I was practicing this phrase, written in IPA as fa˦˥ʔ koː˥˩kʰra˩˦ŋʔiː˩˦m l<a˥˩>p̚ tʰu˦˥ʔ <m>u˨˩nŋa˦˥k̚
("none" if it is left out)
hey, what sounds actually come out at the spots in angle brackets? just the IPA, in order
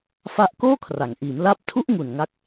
a˦˥, ŋ

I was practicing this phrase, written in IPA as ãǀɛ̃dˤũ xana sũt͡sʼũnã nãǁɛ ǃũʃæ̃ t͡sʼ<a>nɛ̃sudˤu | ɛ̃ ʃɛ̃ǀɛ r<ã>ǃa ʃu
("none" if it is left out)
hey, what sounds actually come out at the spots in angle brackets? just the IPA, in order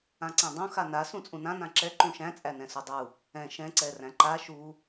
æ, æ̃

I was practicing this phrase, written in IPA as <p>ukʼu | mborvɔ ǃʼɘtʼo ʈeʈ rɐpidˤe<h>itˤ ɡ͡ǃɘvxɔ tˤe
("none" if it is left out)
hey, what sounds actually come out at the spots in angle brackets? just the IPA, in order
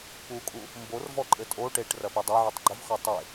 p, ʕ

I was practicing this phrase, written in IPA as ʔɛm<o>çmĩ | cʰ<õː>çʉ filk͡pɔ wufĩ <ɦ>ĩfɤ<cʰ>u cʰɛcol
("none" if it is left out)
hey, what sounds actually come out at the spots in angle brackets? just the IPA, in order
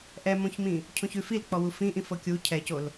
õ, õ, ʔ, kʲ

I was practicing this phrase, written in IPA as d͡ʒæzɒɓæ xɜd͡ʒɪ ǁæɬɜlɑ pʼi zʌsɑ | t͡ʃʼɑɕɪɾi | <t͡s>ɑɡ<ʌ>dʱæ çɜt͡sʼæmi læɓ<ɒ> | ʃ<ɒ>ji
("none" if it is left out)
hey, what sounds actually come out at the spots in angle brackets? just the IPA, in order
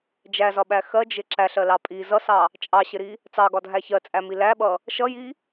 t͡s, ɒ, ʌ, ʌ

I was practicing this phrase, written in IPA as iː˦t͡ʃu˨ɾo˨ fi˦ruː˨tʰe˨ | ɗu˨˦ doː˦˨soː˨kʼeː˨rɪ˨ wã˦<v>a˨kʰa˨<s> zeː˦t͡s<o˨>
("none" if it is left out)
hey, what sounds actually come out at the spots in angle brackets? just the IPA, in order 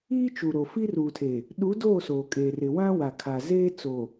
w, none, o˨

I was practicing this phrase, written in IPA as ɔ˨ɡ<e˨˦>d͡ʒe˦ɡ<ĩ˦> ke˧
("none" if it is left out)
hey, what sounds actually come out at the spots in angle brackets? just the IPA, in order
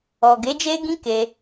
e˨˦, ĩ˦

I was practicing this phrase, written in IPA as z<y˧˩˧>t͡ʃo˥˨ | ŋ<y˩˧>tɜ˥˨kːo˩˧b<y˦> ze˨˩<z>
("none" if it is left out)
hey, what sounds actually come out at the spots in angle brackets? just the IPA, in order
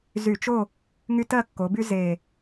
y˧˩˧, y˦, y˦, none

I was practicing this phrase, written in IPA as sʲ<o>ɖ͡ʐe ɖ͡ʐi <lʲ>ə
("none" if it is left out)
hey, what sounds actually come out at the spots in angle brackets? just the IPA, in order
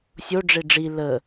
o, l

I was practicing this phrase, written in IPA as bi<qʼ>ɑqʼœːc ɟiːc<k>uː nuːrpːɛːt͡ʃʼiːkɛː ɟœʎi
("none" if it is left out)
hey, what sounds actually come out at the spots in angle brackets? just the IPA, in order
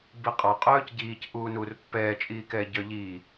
qʼ, ʔ

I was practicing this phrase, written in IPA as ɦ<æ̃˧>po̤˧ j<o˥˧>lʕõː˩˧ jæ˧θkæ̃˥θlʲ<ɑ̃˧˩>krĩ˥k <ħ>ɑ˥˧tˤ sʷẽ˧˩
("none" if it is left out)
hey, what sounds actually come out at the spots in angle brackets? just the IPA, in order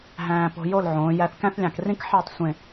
æ̃ː˧, o˥˧, ɑ̃˧˩, ħ

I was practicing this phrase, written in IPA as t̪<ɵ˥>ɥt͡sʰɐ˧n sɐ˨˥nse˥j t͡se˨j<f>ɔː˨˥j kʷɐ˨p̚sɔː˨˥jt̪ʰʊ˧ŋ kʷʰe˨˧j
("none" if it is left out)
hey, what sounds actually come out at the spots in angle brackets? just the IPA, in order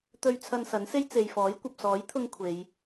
ɵ˧, f

